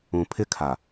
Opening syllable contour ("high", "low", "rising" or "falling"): low